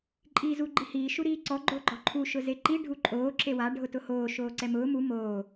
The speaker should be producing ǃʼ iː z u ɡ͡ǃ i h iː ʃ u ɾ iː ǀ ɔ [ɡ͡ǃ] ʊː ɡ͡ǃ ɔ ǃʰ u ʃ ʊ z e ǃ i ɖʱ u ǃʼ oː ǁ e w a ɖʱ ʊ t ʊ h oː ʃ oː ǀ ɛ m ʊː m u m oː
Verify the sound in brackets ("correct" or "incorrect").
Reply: correct